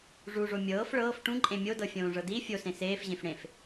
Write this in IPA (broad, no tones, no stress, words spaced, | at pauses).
ʐuʐo mʲɤːf ɭɤːf ʈũǃʼẽ mʲodɤfʲõːʐɤ di fʲosẽ seːfʑẽf ɽẽf